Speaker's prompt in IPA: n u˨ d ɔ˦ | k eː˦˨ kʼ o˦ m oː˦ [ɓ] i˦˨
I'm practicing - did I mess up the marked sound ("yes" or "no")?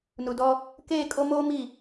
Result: yes